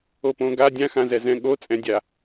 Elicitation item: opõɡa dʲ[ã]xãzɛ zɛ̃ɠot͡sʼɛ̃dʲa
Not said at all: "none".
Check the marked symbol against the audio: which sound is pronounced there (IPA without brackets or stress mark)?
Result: ã